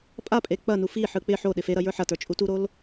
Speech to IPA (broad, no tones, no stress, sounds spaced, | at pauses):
pʼ a pʼ e k͡p ɐ n u f i ħ ɯ k͡p ɪ ħ o ɗ ɪ f e ɾ ɐ j ə˞ ħ ɐ t ə˞ t͡ʃʼ u t u ɾ o l